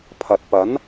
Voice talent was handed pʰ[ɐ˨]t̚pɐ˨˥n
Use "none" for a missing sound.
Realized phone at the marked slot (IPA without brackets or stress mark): ɐ˨